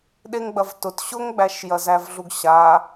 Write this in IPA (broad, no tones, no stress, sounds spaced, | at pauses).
ɗ e ŋ ɡ͡b ɐ v t ʊ t ɕ ʊ ŋ ɡ͡b æ ʃ j ɐ z æ v ɮ u ɡ ɕ a